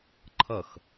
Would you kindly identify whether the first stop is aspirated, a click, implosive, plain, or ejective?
click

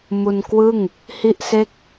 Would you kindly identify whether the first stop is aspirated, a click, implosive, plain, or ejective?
plain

